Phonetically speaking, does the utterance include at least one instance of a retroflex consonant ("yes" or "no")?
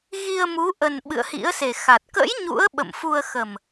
no